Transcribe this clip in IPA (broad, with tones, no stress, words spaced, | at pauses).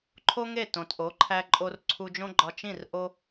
ǃʰo˥ŋe˥˩tõ˩t ʔo˩˥ǃʰæ˧ ǃʼo˧rǀʰu˧d͡ʒõ˥ ɡ͡ǃɒ˧t͡ʃĩ˥˩r ʔo˥